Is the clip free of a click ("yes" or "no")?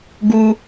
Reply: yes